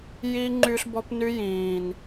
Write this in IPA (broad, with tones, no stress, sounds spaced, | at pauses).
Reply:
j i˧ ŋ͡ǃ y˧ ɬ b ɔ˧ p n y˧ j ĩ˨ n